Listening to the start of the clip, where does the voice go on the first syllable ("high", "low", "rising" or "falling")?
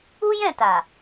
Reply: high